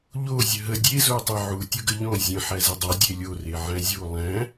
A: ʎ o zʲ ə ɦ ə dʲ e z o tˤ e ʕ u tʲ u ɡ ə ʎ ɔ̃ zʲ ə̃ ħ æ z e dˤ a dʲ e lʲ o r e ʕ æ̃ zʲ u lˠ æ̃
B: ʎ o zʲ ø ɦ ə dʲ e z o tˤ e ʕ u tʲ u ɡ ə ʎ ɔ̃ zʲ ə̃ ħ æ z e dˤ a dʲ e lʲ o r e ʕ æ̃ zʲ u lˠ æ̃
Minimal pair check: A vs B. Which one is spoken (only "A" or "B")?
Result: A